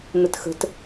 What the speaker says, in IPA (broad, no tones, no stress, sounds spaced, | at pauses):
n̪ ə t x ə̤ t